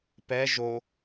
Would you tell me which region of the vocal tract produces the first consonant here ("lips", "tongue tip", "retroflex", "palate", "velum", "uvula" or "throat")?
lips